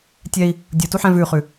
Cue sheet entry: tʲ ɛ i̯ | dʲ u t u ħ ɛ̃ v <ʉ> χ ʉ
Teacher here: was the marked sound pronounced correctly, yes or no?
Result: yes